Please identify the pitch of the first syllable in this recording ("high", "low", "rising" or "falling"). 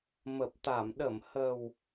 low